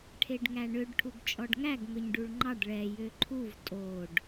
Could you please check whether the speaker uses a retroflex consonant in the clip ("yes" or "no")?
yes